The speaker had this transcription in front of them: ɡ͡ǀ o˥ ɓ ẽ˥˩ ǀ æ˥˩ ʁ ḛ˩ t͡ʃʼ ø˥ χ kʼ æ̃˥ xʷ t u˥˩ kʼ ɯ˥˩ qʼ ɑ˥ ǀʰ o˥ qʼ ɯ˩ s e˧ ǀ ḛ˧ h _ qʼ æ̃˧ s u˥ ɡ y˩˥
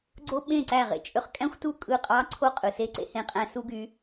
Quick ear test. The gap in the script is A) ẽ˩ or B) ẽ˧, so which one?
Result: B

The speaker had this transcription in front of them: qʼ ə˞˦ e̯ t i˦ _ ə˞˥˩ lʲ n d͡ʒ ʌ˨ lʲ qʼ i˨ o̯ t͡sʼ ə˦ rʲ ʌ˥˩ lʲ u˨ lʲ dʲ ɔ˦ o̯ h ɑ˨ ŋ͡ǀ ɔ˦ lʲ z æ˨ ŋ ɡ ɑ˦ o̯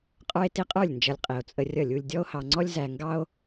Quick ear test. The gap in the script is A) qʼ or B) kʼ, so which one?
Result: A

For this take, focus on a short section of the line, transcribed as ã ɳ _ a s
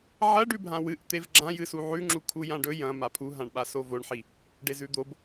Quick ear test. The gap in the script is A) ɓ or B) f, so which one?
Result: A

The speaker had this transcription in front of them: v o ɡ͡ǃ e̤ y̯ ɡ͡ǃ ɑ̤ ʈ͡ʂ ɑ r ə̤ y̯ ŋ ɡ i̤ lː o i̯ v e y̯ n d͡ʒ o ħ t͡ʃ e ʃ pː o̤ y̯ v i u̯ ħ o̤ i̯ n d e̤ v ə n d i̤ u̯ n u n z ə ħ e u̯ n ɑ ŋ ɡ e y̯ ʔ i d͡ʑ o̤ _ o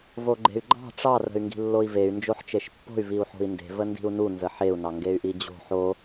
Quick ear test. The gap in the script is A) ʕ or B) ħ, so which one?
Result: B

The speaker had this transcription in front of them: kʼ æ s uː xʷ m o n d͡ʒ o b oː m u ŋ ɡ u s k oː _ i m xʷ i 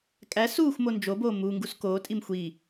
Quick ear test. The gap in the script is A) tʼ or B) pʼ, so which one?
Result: A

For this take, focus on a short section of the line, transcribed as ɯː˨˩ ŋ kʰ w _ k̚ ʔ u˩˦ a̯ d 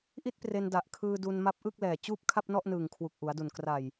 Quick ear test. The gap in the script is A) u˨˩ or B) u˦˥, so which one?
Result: A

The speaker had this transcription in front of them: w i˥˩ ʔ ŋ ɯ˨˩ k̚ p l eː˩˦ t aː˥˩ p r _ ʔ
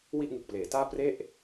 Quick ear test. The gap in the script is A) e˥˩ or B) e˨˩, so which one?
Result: A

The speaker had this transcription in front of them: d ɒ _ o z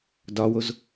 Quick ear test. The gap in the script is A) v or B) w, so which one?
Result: B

